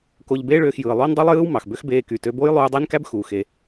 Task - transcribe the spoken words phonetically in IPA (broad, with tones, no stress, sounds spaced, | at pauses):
k o˧ ʎ b eː˥ ɭ øː˧ x j ɯː˩ lˠ oː˥ n dˤ y˥ lˠ j ɯː˥ w m ɑ˩ x b ø˥ x b eː˧ k y˩ t ø˧ b oː˥ j lˠ uː˧ dˤ e˥ n k æ˥ b x u˩ x e˩